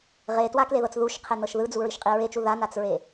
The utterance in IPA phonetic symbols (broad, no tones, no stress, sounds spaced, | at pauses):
ʁ e t w a k l e ð ɤ t͡s ð u ʃ qʰ e n ɤ ʃ ð ɯ d͡z u ɹ i ʃ qʼ i ɹ e t͡ʃ u ð a n a t͡s ɹ e